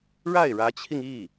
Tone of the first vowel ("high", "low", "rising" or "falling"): falling